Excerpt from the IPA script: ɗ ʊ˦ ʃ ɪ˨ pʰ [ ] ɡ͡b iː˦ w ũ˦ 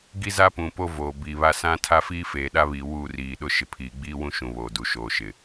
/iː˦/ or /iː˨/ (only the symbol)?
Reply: iː˨